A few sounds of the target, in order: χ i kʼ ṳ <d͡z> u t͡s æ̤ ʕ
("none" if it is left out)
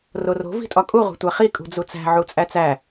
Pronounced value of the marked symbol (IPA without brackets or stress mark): d͡z